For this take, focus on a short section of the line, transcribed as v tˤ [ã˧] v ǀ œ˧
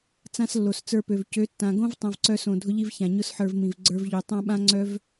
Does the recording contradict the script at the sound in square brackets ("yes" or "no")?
no